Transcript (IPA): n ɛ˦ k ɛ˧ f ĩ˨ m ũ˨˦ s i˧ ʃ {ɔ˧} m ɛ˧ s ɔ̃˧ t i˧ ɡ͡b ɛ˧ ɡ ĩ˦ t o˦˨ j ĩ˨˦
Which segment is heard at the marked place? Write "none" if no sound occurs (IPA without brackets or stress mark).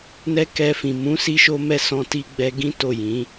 o˧